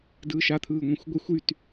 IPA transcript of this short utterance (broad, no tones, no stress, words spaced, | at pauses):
dɯːʃa t̪ʰɯːŋʷẽxʷɡʷexʷ yt